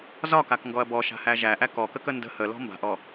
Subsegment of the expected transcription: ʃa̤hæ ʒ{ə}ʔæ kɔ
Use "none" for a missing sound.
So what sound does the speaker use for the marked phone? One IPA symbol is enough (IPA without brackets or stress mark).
æ